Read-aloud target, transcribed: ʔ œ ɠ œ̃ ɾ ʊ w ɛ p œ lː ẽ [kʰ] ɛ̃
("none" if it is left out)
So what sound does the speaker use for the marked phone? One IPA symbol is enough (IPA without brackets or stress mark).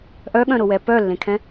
kʰ